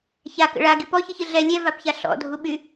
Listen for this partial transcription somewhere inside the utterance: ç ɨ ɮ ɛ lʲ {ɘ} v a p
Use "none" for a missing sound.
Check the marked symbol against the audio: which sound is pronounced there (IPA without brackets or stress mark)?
ɛ